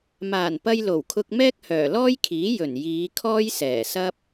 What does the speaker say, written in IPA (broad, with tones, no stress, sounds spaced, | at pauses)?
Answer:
m aː˨˩ n p ɐ˧ j l o˨˩ w kʰ ʊ˧ k̚ m ɛː˥ k̚ h œː˨˩ l ɔː˥ j kʰ iː˨˥ j ɵ˨˩ n j iː˨˧ kʰ ɔː˥ j s ɛː˨˩ s ɐ˥ p̚